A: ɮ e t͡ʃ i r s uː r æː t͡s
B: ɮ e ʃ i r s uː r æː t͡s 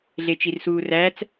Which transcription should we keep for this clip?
A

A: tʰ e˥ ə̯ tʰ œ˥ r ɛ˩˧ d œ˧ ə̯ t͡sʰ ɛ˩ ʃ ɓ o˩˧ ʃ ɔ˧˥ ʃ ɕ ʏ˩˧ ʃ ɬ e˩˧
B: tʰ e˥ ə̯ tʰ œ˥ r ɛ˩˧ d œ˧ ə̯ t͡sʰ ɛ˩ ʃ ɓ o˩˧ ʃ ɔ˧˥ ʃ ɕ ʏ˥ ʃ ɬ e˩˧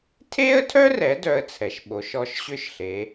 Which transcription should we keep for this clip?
B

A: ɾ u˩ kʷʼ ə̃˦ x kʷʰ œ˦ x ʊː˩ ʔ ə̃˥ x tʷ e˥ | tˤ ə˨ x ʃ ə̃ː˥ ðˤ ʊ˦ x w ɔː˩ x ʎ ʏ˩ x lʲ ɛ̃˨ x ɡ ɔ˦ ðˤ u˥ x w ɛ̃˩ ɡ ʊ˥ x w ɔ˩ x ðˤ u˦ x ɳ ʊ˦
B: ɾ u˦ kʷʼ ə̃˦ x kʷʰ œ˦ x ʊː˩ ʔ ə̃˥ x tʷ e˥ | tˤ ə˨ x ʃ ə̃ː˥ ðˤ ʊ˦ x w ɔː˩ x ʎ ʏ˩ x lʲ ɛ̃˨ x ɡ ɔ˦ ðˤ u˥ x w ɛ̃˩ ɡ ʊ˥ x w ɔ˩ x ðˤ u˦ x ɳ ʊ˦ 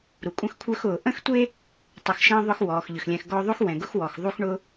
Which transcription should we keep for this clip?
A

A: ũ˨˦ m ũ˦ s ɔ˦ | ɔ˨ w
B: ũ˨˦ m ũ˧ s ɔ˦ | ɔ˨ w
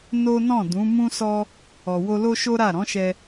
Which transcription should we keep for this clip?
A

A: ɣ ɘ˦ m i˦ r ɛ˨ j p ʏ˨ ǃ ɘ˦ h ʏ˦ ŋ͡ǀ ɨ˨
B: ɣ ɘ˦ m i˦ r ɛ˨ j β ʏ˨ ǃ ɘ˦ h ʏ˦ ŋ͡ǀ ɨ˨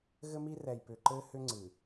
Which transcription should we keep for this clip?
A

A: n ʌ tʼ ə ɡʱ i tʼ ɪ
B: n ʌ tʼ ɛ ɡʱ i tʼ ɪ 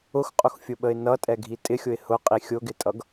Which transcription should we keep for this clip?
B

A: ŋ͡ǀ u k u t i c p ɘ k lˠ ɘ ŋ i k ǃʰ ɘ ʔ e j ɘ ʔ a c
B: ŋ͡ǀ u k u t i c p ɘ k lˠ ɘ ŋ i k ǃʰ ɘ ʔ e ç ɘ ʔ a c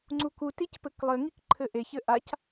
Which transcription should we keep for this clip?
B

